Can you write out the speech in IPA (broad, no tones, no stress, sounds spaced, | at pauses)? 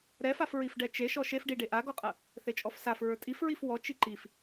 ɾ ɛ f a f ɹ i f ɖ ɛ t͡ʃ e ʃ ɔ ʃ e f ɖ i ɖ e ʔ a ɡ ɔ qʼ ɐ | θ e t͡ʃʼ ɔ f s a f ɹ ə˞ tʼ i f ɹ i f w ɔ t͡ʃ i ǃ i f